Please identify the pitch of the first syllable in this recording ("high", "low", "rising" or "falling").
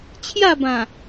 falling